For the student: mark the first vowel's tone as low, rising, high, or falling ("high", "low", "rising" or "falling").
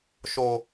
low